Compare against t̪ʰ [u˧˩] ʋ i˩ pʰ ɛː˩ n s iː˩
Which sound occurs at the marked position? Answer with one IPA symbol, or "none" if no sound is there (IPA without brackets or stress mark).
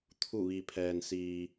u˧˩